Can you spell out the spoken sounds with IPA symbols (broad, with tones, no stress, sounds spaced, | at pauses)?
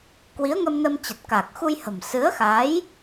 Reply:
k w i˨˦ ə̯ ŋ ə˧ m n ə˧ m t͡ɕ ə˨˩ t̚ k a˨˩ k̚ x u˧ j h ə̤˨˩ m s ɨ˨˦ ə̯ x a˨˦ j